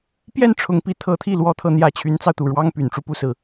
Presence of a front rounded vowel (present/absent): present